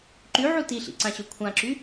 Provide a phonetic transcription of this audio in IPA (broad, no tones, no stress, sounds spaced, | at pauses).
ǃ y ʕ u t i ɬ ḭ ǀ ã ɕ ø kʷʰ ã ǁ y